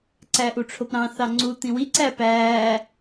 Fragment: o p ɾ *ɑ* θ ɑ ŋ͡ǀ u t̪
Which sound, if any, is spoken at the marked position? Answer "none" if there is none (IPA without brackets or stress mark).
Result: ɑ̃